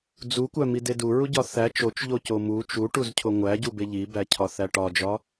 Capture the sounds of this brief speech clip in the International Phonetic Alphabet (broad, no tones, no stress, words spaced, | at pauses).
d͡zukʷæmide duɹuɟɒ θæ t͡ʃot͡ʃʎoco mu t͡ʃuʈuzcʰo ŋʷæɟube ʎibæcʰɒθæ ʈɒd͡ʒɒ